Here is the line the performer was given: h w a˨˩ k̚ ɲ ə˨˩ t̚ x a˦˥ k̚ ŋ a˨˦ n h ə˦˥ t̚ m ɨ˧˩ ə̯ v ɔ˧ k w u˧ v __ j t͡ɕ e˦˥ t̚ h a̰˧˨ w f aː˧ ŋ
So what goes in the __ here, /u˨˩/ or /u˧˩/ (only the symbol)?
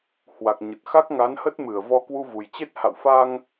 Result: u˨˩